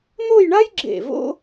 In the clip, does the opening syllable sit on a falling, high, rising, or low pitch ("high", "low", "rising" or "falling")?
falling